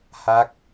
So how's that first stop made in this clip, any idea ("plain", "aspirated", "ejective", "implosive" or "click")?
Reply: plain